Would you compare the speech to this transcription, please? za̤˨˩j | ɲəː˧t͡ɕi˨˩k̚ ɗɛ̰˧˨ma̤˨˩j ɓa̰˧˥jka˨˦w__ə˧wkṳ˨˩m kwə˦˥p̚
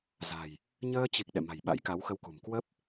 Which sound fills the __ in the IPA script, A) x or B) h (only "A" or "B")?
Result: A